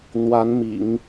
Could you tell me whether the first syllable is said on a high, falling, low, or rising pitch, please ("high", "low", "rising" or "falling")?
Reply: rising